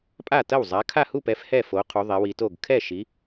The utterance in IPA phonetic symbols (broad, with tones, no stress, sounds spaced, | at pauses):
pʼ a˥˩ t ɐ˥˩ w zˤ a˨˦ kʰ a˥˩ h u˥˩ p ɛ˨˦ f h ɛ˥˩ f o˨˦ qʰ u˨˦ ðˤ ɛ˨˦ w i˨˦ t o˥˩ ɡ kʰ ɛ˥˩ ʃ i˨˦